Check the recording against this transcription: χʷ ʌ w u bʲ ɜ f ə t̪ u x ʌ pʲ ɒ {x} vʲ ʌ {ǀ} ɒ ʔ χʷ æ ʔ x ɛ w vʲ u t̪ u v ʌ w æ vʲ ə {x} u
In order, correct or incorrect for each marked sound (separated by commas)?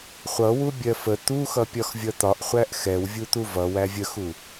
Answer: correct, incorrect, correct